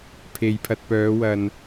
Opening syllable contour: low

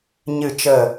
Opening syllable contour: falling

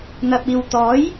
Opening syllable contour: low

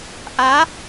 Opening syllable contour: rising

